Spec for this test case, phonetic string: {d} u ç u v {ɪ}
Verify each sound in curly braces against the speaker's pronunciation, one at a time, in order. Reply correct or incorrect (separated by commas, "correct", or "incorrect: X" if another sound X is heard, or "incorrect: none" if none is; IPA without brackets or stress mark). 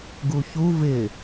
incorrect: ɡ, correct